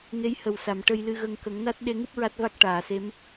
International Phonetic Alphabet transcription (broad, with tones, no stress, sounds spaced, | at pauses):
ŋ e˧˥ j h ə˨˩ w s a˨˩˨ m ʈ ə˧ j l ɨ˧ ɣ ə˧ ŋ k ə˨˩˦ ŋ n a˦˥ t̚ ɗ e˧ ŋ ɨ˦˥ p̚ ɹ a˦˥ t̚ v a˦˥ k̚ ʈ aː˨˩˨ s e˧˥ m